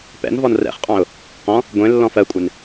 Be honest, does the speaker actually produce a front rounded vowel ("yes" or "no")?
no